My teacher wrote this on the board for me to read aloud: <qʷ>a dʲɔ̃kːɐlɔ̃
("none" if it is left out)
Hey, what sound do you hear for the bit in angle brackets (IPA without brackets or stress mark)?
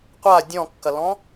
qʷ